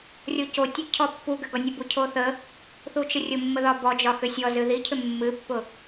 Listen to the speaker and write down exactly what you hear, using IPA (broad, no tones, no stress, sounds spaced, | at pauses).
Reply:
rʲ o c o tʲ ʊ cʰ ɔ pː u ɡ ʏ ɡ ɒ nʲ ʊ b u cʰ o θ ə | θ u t͡ʃ ə rʲ ʊ mː ə ð ɒ b ɔ d͡ʒ ɒ x ʏ sʲ ɔ z ɨ ð i cʰ ʏ mː ɨ pː ʊ